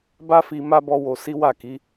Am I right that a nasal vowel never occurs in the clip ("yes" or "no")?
yes